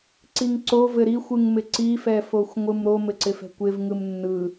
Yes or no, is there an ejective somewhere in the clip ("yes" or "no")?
no